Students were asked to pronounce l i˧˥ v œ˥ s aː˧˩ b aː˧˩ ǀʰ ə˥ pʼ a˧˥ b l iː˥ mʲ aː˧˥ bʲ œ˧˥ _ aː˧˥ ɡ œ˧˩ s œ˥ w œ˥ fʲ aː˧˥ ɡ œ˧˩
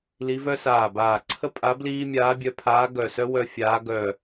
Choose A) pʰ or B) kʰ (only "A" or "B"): A